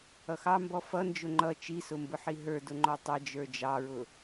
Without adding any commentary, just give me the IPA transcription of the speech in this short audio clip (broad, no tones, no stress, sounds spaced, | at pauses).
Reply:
ʌ x ɑ m b ɔ f ʌ n d͡ʒ ʊ ŋ͡ǃ ʌ t͡ʃ i s ʊ m b ʊ ħ i ɦ ə˞ d ʊ ŋ͡ǃ ɔ tˤ ʌ d͡ʒ ə˞ d͡ʒ ɑ ɹ ʊ